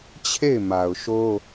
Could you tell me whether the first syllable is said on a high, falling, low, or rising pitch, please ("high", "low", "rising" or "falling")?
falling